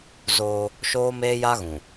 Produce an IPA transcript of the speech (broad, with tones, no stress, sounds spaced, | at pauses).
z oː˦ | ʃ oː˦ m eː˦ j a˦ ɣ ũ˨